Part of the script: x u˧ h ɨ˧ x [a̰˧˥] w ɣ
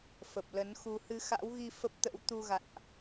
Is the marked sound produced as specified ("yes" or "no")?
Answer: yes